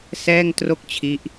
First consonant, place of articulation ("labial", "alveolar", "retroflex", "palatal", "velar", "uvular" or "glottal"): alveolar